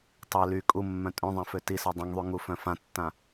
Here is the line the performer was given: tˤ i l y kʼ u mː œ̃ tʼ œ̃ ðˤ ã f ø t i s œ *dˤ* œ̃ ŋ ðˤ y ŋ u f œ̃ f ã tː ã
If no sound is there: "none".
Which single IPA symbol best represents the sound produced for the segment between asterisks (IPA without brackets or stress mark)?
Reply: dˤ